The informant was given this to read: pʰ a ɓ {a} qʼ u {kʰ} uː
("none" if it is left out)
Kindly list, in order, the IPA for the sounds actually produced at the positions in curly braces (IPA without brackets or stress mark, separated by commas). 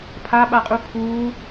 a, kʰ